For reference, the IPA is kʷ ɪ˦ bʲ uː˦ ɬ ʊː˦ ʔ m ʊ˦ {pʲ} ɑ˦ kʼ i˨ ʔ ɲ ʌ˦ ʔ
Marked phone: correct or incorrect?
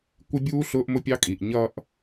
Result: correct